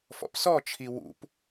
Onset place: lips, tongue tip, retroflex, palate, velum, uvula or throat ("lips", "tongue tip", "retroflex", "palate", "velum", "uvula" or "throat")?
lips